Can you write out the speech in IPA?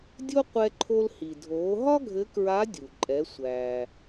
dʲ o˥ qʷ ɛ˧ ǃʰ o˧ l h i˩ dʱ oː˩˧ ɦ ɒ˥ ɡʱ ɘ˧˥ k ɹ a˧˥ dʲ u˩ ǃʼ ɛ˩˧ sʷ æː˩

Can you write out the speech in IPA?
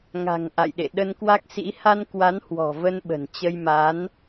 ŋ a̤˨˩ ŋ ʔ a̰˧˨ j ɗ ḛ˧˨ ɗ ə˧ n k w a˦˥ k̚ s ḭ˧˥ h a˧ n k w a˨˦ n h w ɔ̤˨˩ v ə˧ n ɓ ə̤˨˩ n t͡ɕ ə˧ j m a˨˦ n

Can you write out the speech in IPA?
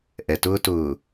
ʔ ɛ˨ t ʊː˦ t ʊː˨

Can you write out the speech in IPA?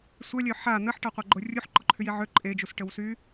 sʷ œ lʲ œ ħ a n̪ ə ħ ʈ a qʷ a ɡ͡ǃ o rʲ u ħ ǃ ɔ ǃʰ y j i ʕ ø ǃʼ e d͡ʒ u s ʈ ə w s y

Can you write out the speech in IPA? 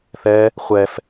θ ɛ | χʷ ɛ f

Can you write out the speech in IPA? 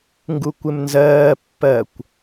ŋ ɡ u kʷ ɪ m n z ɜː pː ɜ kʷ

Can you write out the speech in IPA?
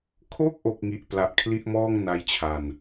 kʰ o˥˩ k̚ ʔ o˨˩ k̚ ŋ i˨˩ ʔ p l a˨˩ ʔ kʰ l i˥˩ ʔ m ɔː˥˩ ŋ n a˦˥ j t͡ɕʰ a˧ n

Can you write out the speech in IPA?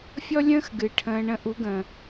fʲ ɔ˦ lʲ ə̃ː˦ x ɡ ɨ˨ ʈʰ ə̃ː˧ ɳ ə̃˧ ʔ u˨˦ ɡ ə̃ː˨

